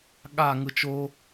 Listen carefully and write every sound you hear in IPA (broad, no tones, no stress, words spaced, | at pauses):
ɠa ŋɯt͡ʃo